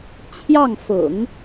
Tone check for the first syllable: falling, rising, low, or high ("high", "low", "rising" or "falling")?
falling